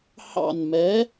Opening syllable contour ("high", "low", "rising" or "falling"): falling